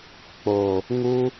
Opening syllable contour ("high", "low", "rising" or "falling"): low